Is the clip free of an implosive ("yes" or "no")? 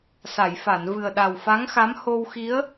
no